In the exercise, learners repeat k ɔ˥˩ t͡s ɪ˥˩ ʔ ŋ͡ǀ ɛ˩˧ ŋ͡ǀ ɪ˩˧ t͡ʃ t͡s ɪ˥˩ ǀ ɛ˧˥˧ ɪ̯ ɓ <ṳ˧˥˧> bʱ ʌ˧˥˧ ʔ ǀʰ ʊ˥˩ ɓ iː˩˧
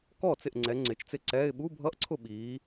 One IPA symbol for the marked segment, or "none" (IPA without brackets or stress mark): u˧˥˧